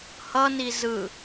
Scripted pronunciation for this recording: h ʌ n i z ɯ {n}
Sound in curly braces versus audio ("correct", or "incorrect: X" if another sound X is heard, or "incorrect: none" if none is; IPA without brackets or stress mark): incorrect: none